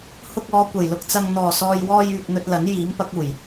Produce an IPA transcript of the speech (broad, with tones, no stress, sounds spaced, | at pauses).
h ʊ˧ k̚ ɔː˨˧ kʷ ɐ˨˩ j l ʊ˧ k̚ t͡s ɐ˧ ŋ n̪ ɔː˨˩ s ɔː˨ j w ɔː˧ j yː˨ k̚ n̪ ɵ˧ t̚ l ɐ˨˥ n j iː˨˥ m p ɐ˨˥ k̚ uː˨˩ j